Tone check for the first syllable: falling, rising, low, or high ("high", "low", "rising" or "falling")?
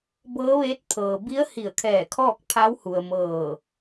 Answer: rising